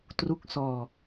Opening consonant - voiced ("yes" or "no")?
no